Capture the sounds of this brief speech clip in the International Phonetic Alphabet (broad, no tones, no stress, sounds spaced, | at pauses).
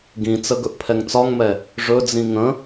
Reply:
ɡ ĩ t͡s ə ɡ ɵ ʔ pʰ ɛ ŋ t͡s ɒ ŋ m ɛ | ʐ ɵ d͡z ĩ ŋ ə̃